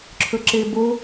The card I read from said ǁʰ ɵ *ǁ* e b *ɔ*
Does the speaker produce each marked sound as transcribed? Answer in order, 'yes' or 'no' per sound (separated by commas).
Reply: yes, no